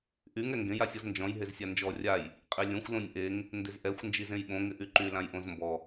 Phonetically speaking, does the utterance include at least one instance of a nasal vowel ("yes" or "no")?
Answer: yes